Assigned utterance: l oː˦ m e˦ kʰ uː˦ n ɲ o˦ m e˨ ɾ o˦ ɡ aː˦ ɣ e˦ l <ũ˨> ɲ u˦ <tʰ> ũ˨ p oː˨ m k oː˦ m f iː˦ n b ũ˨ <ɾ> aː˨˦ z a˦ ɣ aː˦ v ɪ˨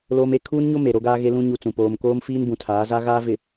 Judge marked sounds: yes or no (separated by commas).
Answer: no, no, no